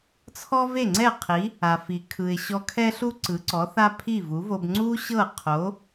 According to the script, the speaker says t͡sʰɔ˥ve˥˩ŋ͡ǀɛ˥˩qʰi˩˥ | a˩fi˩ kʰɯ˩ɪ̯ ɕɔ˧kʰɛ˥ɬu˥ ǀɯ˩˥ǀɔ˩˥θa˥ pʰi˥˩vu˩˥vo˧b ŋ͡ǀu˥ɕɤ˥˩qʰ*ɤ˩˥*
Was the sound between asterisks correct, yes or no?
no